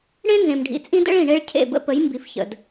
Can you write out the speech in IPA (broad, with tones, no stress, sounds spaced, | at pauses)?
ɽ ẽ˦ n z ẽ˨ m ɖʱ ḭ˨ t͡sʼ ĩ˦ d ə̰˦ ɭ ĩ˨ ɳ e˦ ɭ cʰ ḛ˦˨ b ə̰˦ p ə˨˦ j m b i˨ f ç ə̰˨ d